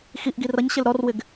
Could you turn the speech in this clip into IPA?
xiʔɡi rʌɲɕɪl ɾɔrwɪɡ

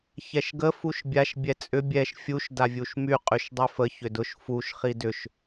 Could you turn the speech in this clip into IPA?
çɛʃɡə fuʃbʲaʃ bʲɛt͡sʼʏ bʲɛʃ fʲuʃ davʲuʃmy qʼyʃdˤyfə çʏdʊʃ fuʃ χidʏʃ

